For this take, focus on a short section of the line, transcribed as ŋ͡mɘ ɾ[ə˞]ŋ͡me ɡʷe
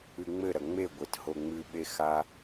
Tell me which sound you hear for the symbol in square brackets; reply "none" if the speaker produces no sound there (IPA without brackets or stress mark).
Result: ɐ